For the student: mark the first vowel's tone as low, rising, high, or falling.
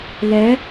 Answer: rising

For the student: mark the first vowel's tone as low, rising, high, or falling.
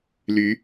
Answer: rising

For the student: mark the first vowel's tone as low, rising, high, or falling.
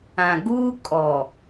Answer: low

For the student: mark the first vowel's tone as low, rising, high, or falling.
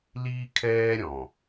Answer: high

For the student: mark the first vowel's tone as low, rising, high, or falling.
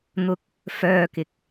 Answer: high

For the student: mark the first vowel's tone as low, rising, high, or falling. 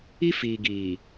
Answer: high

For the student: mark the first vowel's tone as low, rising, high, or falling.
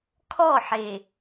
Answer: falling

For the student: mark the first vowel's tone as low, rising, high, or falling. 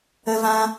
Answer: high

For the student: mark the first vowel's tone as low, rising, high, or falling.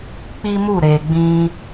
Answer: high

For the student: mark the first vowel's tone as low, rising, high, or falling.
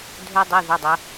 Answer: high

